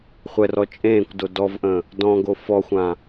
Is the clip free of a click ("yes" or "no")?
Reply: yes